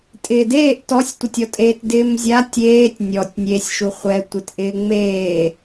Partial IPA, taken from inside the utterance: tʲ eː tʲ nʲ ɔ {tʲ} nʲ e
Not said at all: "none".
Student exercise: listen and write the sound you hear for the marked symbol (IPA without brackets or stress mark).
tʲ